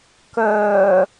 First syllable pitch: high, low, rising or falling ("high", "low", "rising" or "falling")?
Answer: low